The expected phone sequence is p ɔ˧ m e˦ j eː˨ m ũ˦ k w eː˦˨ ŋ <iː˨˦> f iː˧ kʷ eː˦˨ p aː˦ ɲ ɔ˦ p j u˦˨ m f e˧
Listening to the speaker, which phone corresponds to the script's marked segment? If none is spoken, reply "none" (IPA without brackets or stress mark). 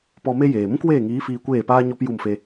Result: iː˨˦